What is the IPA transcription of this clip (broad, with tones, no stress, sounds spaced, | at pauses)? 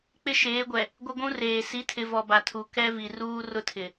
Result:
k͡p ɪ˦ ʃ eː˨˦ ɡʷ ɛ˨ | ɡʷ ɪ˦ ɡʷ ũ˦ r eː˨ s i˨˦ tʰ ɪ˨ v ɔ˨ b a˨ tʰ u˨ k ɛ˦ v i˨ r uː˦ r ʊ˦ tʰ ɪ˨